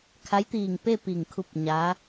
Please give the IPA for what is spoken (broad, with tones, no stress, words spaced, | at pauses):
kʰa˧˥jt̪iː˧˩ŋpe˥˨ pi˧˩ŋkʰu˧p̚ ɲaː˧˥